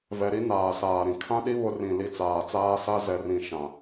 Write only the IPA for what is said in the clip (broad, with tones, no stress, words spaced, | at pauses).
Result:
vɛ˨ɾi˦ naː˨saː˨ɾĩ˨ kʰã˦ɗi˦ βʊ˦ rĩ˨li˨t͡saː˨t͡saː˦ sa˦ zɛ˨rĩ˨ ʃã˨